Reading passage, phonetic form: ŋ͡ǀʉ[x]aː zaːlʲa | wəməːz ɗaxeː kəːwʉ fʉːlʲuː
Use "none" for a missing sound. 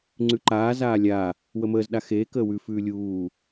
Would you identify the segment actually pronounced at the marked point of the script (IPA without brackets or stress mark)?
ǃ